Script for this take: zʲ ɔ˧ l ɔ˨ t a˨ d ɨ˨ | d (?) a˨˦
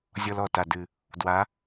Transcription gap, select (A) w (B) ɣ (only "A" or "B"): A